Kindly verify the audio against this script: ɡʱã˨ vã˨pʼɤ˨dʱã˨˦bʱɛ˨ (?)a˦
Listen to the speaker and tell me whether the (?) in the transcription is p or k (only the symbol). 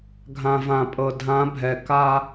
k